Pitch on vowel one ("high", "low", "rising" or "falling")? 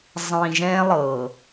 low